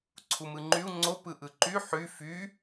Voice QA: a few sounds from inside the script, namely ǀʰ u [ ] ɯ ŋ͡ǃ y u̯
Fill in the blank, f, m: m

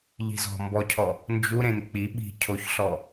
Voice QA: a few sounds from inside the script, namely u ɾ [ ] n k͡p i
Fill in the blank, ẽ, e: ẽ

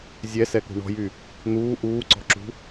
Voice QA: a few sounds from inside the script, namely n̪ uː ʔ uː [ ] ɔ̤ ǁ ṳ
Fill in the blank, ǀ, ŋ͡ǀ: ǀ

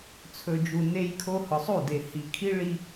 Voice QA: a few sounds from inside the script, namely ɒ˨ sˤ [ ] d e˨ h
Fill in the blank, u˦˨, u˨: u˦˨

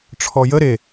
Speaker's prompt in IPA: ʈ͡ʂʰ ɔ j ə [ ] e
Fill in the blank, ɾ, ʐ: ɾ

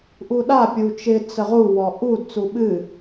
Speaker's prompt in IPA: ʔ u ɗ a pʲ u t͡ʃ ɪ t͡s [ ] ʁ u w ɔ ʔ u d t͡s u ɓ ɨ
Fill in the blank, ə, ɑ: ə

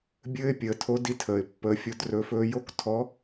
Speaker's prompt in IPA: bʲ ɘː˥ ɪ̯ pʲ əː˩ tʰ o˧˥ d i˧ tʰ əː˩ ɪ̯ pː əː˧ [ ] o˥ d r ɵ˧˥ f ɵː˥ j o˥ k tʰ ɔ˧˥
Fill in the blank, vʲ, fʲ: fʲ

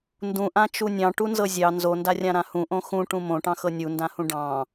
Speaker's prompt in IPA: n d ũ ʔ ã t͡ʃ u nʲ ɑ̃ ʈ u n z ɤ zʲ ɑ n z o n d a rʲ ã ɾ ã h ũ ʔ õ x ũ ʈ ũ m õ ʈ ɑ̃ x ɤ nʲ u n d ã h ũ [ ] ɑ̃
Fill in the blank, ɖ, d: ɖ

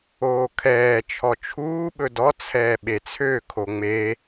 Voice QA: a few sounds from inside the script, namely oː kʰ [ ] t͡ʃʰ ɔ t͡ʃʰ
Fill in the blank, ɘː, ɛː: ɛː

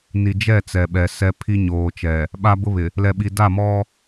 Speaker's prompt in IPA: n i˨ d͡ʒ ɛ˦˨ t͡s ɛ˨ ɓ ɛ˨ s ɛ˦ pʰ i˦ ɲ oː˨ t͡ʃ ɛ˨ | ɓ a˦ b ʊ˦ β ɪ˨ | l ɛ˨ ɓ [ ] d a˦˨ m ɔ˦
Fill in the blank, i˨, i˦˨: i˨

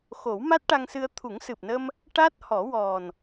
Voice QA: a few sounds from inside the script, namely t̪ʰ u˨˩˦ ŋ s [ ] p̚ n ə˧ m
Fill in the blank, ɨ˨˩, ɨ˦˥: ɨ˨˩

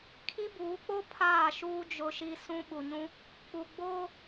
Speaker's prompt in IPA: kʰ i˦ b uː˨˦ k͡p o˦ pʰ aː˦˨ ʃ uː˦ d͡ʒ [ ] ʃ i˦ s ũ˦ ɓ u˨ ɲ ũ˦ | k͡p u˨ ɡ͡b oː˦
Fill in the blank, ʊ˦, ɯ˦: ʊ˦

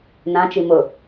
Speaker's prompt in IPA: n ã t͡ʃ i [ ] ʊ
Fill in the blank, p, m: m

